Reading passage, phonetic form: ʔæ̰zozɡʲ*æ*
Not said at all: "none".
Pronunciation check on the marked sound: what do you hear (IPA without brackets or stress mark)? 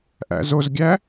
æ